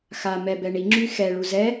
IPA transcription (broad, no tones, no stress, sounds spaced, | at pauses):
x a m ɛ b ɛ ɳ i ŋ͡ǁ y x ɛ ɭ u z ɛ